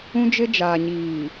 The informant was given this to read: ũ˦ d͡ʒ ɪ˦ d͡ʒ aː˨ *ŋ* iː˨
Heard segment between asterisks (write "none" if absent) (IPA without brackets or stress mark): ɲ